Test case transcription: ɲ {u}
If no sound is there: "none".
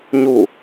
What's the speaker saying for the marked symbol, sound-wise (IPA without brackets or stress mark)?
u